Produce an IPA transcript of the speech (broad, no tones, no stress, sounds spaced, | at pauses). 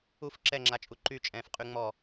u f ǁ ɛ ŋ͡ǁ a t͡ʃʼ u ǃ y t͡ʃʼ ɛ̃ː f qʼ y ŋ͡m ɔ